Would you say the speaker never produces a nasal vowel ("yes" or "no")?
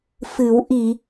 yes